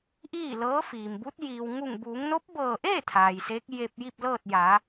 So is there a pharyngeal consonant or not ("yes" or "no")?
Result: no